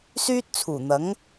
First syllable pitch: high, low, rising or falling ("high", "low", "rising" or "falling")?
high